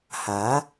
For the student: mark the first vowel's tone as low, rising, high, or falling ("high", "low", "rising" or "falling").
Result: rising